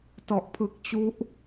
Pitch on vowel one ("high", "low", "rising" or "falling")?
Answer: low